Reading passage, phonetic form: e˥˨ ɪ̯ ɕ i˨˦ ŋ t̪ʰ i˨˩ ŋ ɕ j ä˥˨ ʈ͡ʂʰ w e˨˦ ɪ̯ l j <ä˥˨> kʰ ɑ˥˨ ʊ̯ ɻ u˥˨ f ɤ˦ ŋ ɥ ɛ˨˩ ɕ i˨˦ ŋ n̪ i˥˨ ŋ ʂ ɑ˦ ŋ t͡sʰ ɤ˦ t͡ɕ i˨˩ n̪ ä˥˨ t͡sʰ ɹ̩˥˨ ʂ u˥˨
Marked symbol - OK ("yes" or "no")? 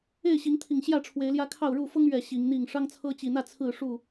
no